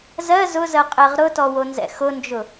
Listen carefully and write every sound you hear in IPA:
zɜ zʊzɜ qʼɛʁɾʊtɔ wonzɛ̰xʊnd͡ʒʊ

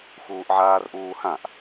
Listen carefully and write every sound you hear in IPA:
xuːʔʕaːrʔuːhãʔ

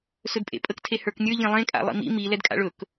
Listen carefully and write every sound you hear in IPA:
sɵdpʼḛpʼək tʰehə˞knʲə˞ ʎẽlˠẽ kʼa̰lˠḭmḭ mi lɛdkʼa̰ɭɵk

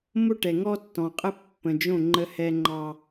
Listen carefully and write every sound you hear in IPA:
mo˦ʈɛ˨ ŋɔ˦tːɔ̃˨qʼə˦ pːə̃˨d͡ʒõ˦˨ ŋ͡ǃə˦hɛ˦ŋ͡ǃɑ˦

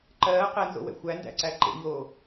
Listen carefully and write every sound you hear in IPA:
ǃɜː qɛnzo̰wɛ̰ xʷændæ̰ǀæ ǃḛɲoː

